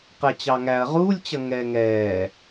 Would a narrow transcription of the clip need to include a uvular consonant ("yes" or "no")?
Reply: yes